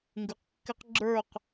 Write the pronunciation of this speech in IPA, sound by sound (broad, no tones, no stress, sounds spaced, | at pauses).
ŋ ɡ ʉ q kː ɪ q ɡ͡ǁ ə˞ q